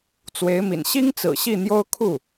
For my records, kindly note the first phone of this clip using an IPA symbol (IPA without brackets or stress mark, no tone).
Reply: t͡s